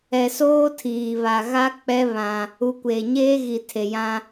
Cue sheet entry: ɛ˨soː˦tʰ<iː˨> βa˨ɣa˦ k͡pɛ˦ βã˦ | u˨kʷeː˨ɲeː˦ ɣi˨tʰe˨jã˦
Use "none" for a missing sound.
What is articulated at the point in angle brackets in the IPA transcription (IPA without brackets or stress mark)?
iː˨